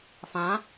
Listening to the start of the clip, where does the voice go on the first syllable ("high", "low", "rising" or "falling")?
rising